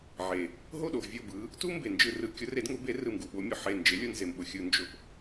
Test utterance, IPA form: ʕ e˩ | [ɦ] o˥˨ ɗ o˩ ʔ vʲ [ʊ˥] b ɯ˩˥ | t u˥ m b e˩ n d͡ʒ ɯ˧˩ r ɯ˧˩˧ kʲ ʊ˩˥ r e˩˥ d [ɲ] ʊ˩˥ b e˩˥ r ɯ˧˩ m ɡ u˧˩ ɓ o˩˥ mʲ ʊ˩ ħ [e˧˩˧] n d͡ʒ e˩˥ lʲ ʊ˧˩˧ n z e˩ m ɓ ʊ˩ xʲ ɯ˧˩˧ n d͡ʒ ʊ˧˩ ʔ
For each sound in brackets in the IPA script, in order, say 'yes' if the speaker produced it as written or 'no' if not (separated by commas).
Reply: yes, no, no, no